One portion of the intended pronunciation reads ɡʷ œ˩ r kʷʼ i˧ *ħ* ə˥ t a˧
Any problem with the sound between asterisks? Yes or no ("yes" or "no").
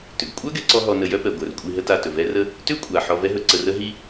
yes